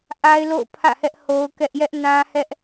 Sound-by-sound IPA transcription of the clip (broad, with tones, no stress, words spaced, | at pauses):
ʔa˦ɪ̯lo̰˦˨ʊ̯pʰä̰˦˨hɛ˦ʔ ho˦ʊ̯kɛ˦ʔ jɛ˦ʔnã˦ hɛ˦ʔ